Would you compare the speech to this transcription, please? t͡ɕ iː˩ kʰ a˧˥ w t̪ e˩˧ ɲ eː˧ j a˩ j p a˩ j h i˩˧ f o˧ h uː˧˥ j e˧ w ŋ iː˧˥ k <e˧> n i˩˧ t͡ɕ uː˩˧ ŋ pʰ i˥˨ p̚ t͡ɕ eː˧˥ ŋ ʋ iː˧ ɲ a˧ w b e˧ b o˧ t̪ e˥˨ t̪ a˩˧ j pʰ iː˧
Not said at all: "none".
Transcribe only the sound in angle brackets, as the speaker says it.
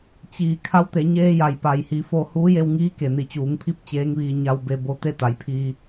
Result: e˩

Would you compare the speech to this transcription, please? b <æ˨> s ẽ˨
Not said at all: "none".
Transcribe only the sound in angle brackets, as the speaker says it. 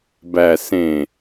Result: æ˨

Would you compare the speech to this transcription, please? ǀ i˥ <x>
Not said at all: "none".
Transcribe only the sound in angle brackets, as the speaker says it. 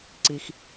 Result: x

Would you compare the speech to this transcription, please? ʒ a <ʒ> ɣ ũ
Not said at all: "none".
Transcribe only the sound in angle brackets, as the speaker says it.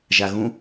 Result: none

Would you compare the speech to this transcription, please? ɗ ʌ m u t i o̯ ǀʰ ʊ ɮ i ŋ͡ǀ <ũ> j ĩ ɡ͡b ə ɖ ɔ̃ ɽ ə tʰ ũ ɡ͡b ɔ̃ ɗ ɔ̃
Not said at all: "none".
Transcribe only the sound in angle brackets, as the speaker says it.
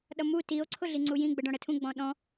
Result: u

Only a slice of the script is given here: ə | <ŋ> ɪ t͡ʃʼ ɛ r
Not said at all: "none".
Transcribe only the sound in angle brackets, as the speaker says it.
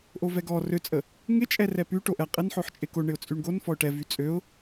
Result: ŋ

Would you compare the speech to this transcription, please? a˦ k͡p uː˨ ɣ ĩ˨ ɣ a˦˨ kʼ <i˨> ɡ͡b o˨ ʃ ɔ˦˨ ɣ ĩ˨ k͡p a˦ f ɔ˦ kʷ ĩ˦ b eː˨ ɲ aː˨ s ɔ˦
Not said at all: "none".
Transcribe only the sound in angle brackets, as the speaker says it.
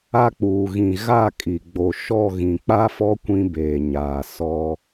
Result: i˨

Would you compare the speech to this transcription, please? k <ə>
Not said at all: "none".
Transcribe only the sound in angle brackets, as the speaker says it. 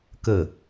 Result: ə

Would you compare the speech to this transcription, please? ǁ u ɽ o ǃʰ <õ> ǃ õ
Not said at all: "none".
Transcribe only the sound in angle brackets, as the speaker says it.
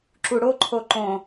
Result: o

